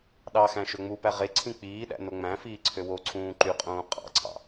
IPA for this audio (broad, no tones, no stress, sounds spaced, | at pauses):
ɗ ɑ x æ̃ ʃ ø ŋ͡m u p æ ʁ e ǀʰ ĩ k͡p iː ɗ æ̰ n o ŋ͡m æ̃ f iː ǀʰ ø w o ǀʰ ũː ǃ y qʼ ũː qʼ ɑ̰ ǀʰ ɑ̰